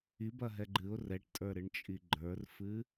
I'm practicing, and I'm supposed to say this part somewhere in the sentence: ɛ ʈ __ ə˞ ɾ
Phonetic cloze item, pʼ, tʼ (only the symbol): tʼ